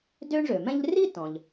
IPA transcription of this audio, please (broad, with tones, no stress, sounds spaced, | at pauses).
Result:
d ø˥ ɳ ʐ ø˩ m ɛ̃˥ ʎ r i˥ t ɔ̃˩ ʎ